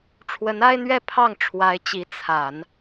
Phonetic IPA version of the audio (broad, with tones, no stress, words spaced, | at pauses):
ʈ͡ʂʰwə˧˥na˥ɪ̯n̪ɥɛ˥˧ pʰɑ˥˩ŋ ʈ͡ʂʰwa˧˥ɪ̯t͡ɕi˧˥ t͡sʰa˨˩˦n